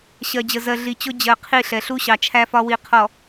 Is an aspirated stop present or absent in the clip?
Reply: present